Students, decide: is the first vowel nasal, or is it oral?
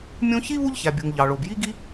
nasal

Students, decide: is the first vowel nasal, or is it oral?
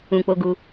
nasal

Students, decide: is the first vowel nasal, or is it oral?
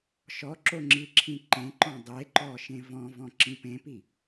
oral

